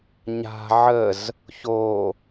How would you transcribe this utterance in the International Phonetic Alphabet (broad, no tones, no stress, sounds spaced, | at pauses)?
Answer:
ɲ a̤ ʕ ə z | ç o